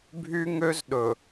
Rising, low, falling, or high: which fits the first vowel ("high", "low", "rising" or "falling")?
high